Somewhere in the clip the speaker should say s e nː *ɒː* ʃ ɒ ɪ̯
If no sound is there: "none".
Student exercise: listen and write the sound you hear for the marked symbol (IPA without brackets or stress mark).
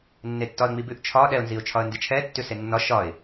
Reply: ɒ